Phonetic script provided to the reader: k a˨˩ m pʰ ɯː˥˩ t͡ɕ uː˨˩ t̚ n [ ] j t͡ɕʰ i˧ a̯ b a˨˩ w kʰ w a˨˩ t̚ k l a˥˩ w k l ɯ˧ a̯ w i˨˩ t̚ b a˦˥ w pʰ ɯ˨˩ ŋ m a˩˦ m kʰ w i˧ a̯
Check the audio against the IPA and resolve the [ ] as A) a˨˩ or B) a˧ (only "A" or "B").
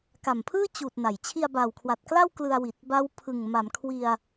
A